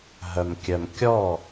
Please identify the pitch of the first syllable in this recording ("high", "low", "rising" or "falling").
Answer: low